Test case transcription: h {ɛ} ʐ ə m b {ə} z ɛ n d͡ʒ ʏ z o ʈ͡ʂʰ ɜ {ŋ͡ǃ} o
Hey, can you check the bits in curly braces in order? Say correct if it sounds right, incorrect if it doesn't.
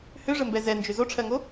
incorrect, incorrect, incorrect

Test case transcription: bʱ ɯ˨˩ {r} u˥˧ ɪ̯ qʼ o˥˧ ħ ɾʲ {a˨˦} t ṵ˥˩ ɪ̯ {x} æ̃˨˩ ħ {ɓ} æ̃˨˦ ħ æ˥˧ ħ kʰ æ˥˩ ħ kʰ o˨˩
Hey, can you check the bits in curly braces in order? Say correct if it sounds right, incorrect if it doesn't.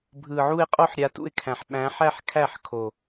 incorrect, correct, incorrect, correct

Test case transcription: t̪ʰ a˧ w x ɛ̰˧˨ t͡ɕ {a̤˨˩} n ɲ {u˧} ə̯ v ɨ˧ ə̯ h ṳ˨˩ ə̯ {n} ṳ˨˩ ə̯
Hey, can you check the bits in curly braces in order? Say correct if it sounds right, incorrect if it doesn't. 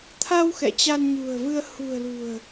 incorrect, incorrect, incorrect

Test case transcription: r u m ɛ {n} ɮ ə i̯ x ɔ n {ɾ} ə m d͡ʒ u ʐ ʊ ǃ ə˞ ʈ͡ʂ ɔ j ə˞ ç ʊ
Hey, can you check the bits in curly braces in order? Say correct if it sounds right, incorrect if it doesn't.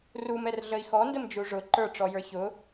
incorrect, incorrect

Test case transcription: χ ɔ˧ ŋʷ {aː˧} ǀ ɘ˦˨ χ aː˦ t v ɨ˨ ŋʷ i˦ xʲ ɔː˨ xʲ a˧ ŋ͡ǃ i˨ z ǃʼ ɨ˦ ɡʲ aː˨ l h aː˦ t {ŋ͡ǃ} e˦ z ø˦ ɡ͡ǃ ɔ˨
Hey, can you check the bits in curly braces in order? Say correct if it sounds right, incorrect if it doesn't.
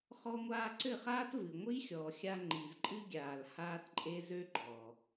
correct, incorrect

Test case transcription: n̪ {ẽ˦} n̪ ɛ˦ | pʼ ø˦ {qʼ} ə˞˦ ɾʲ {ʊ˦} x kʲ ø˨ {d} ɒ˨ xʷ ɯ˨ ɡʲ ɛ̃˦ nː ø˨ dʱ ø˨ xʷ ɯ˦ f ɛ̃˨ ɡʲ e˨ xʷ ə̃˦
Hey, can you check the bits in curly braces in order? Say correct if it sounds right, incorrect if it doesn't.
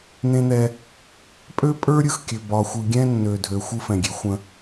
correct, incorrect, incorrect, incorrect

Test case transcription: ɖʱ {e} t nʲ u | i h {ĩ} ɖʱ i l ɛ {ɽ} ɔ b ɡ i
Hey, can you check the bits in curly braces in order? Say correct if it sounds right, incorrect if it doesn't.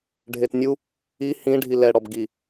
correct, correct, correct

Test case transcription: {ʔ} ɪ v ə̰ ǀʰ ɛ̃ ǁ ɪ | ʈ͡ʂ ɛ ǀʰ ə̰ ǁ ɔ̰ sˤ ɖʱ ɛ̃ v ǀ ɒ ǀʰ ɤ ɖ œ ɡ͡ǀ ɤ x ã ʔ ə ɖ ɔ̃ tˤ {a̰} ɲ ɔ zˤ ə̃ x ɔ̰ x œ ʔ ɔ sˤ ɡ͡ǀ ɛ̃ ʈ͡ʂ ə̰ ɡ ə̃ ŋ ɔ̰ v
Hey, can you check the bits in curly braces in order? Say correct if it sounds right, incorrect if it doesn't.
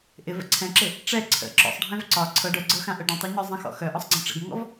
correct, incorrect

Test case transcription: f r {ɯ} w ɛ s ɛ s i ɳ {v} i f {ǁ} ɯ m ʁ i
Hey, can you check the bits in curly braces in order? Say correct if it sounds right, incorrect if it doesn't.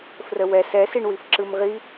incorrect, incorrect, correct

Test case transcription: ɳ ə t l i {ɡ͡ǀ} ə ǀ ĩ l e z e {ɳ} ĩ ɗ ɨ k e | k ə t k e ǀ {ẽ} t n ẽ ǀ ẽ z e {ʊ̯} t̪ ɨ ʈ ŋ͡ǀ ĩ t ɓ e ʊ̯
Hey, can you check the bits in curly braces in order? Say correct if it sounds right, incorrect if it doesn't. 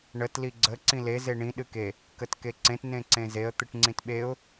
correct, correct, correct, incorrect

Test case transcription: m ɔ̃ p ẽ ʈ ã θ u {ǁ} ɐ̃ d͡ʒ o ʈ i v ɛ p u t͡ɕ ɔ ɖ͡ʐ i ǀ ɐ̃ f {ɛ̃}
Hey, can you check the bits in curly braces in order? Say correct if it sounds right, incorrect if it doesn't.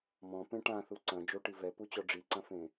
incorrect, incorrect

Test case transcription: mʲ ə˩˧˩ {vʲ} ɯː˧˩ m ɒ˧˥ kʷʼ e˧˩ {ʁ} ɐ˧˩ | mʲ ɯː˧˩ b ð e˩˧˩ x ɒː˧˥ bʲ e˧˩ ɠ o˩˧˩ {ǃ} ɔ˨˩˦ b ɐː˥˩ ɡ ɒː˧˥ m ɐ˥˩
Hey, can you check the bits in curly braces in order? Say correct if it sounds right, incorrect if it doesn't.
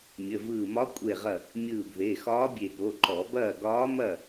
incorrect, correct, correct

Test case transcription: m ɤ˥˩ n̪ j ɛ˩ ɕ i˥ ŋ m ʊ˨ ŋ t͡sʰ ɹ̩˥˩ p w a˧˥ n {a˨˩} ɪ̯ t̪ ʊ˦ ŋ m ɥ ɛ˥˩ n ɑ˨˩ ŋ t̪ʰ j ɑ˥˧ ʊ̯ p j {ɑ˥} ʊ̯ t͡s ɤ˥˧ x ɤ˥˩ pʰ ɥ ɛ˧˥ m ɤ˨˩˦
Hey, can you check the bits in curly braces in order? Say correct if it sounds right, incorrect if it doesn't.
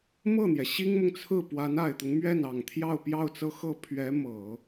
correct, incorrect

